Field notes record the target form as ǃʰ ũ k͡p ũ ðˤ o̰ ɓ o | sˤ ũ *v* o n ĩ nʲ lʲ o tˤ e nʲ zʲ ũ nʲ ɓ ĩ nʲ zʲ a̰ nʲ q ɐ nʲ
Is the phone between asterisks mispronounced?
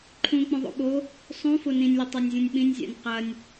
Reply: yes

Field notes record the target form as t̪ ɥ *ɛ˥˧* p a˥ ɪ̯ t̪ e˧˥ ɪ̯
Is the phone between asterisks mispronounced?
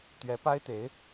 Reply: yes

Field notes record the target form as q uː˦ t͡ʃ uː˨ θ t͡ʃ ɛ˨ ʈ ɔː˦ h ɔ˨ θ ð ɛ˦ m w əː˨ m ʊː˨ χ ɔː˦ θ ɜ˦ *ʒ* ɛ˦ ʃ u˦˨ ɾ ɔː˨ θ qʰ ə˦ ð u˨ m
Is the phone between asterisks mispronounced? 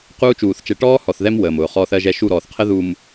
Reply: no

